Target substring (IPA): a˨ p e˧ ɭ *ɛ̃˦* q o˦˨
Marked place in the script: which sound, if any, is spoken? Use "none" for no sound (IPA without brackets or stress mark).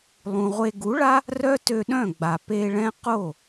ɛ̃˦